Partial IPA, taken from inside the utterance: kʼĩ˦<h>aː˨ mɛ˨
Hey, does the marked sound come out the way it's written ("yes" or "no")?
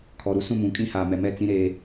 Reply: yes